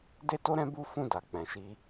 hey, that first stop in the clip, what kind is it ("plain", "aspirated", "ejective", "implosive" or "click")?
plain